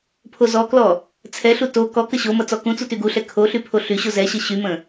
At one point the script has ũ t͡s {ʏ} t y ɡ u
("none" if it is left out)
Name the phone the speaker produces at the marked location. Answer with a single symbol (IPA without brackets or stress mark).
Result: u